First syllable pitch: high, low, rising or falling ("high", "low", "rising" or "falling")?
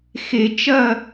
low